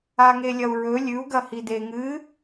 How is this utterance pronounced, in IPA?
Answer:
aŋelʲɐu̯ɹɵ lʲʉu̯ ɡɐhide ŋɨ

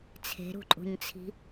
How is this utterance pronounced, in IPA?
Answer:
t͡sʰe̤ɾṳǃʼṳɲt͡sʰi̤

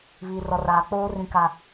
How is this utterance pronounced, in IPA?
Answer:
βiː˨rɔ˨raː˨ k͡poː˦ rĩ˦ka˦

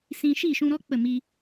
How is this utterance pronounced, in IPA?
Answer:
sĩ˧ ʃi˦˨ʃũ˧ɾɔ˦ k͡pə˦˨mi˧

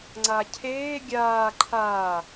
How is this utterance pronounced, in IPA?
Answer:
ŋ͡ǀacʰeː ɡʲaː ǃʰaː

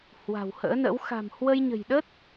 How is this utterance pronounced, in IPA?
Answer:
hwa̤˨˩whə̰ː˧˥nə̰˧˥w xa̤˨˩m hwə˧jɲə̤˨˩jɗə˦˥t̚

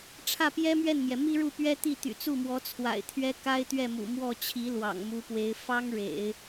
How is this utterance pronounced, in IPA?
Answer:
ʈ͡ʂʰä˥˩pjɛ˥mɥɛ˥˩nmjɛ˩ mi˥ɻu˥˩pɥɛ˥ t̪i˥˩ t̪y̰˨˩t͡su˥˩mwɔ˧˥ t͡sʰwa̰˨˩ɪ̯t̪ʰɥɛ˥ ka˥ɪ̯t̪ɥɛ˥˩mṵ˨˩ mwɔ˥˩t͡ɕʰi˧˥ lwɑ̰˨˩ŋmu˧˥pwe˧˥ɪ̯ fɑ˥ŋ ɻḛ˨˩˦ɪ̯

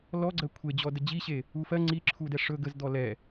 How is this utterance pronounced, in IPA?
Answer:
lɔɡ͡ǀɜ kʷʰed͡ʑɔdə d͡ʑiɕe | ufɜ ŋ͡ǀiǁʰudɛ ʂɵɡ əzd̪ɔ lɛ

